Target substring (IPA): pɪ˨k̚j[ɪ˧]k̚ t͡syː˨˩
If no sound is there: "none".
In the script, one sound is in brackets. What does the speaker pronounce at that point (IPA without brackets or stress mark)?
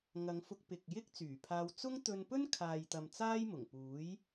ɪ˥